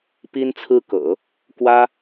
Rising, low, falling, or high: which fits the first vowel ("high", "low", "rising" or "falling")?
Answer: high